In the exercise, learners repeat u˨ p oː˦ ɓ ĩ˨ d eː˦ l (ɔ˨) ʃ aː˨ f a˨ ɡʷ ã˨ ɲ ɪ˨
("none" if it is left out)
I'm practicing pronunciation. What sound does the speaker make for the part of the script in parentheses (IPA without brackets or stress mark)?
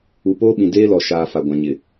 ɔ˨